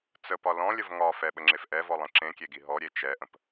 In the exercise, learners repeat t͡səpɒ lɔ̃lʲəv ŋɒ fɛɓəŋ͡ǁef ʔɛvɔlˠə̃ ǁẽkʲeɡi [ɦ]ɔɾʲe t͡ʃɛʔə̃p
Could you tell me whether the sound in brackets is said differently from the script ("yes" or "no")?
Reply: no